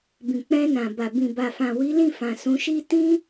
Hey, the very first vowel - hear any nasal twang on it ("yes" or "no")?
yes